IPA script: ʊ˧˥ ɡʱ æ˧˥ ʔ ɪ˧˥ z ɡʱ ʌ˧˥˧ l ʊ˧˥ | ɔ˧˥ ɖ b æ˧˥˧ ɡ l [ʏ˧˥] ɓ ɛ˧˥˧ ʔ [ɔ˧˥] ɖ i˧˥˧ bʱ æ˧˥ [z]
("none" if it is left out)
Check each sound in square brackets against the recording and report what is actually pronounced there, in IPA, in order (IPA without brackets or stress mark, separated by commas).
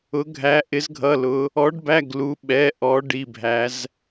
u˧˥, ɔ˧˥, z